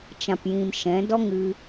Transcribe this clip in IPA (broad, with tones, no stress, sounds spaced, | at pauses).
t͡ʃ ã˨ p j ĩ˨ m ʃ ɛ̃˨˦ d ɔ˦ ŋ ɨ˧